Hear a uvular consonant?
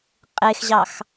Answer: yes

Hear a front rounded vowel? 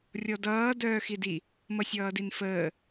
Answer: yes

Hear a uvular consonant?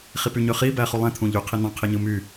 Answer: yes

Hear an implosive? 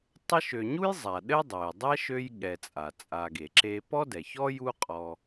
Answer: yes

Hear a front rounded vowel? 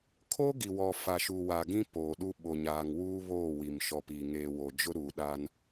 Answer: no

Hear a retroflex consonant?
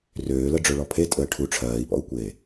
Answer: yes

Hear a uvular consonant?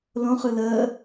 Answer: yes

